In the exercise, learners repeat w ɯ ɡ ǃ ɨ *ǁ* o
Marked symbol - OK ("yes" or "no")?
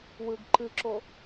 yes